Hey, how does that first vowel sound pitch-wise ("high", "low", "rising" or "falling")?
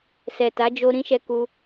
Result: low